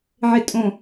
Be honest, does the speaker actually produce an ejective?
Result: yes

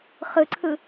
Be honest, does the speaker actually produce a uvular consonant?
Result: yes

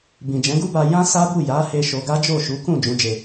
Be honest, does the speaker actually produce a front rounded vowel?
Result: no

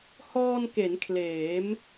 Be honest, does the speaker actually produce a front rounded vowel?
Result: no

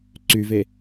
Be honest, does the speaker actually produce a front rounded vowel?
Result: yes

